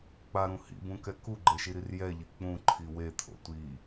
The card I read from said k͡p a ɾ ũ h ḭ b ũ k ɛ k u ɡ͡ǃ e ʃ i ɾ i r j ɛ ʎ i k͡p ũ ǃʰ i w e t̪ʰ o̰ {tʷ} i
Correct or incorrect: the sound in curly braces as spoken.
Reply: correct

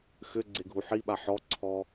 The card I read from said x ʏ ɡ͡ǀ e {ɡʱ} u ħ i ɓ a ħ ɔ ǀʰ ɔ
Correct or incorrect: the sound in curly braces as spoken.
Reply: correct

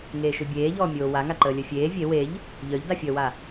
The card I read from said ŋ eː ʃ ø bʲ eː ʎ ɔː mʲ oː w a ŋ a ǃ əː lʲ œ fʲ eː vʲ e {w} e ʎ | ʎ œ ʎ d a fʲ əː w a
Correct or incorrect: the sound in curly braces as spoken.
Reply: correct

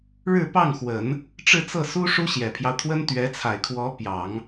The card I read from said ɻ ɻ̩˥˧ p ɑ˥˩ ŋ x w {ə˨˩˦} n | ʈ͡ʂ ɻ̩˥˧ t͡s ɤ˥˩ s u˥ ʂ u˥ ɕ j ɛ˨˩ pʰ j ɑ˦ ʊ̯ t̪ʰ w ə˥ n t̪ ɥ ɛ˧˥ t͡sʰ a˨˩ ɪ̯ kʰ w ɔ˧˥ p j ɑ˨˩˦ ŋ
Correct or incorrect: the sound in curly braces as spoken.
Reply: correct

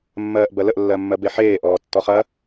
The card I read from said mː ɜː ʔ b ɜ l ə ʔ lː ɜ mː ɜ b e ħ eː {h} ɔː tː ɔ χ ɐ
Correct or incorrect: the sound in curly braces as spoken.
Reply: incorrect: ʔ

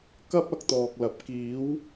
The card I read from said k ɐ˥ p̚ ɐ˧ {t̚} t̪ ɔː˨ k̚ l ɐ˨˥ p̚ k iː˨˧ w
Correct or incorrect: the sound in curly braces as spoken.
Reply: incorrect: k̚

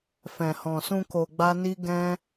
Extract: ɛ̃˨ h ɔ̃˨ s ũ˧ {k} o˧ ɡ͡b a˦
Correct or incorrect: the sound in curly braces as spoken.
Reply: correct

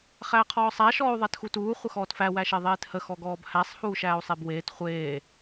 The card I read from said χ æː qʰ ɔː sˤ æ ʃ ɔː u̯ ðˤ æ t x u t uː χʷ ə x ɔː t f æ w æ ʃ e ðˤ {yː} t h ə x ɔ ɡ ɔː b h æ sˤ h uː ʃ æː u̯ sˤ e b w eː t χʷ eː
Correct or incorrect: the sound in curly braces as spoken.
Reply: incorrect: eː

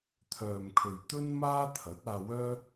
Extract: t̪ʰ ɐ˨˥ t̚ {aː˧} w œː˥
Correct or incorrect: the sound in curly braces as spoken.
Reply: correct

